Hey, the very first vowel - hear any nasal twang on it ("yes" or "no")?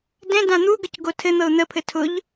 yes